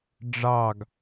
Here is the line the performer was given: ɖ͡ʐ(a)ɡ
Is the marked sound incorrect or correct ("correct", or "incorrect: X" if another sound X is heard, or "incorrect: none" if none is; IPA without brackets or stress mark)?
incorrect: ɑ